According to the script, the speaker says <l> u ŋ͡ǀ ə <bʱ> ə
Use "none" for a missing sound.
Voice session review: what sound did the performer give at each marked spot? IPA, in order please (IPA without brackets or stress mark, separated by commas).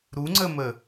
ɾ, m